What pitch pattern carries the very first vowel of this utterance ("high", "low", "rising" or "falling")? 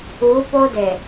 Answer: rising